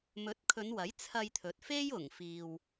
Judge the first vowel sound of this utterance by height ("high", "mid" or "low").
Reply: mid